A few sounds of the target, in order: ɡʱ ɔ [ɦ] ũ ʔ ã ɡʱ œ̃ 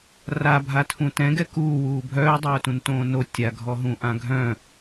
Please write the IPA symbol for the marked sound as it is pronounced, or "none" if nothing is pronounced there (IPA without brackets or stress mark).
ɦ